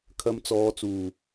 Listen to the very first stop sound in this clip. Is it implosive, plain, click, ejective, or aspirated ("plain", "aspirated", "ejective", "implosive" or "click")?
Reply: aspirated